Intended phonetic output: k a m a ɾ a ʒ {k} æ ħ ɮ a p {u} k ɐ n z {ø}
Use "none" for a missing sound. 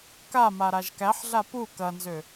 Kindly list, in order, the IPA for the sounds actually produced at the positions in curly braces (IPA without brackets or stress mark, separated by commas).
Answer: k, u, ø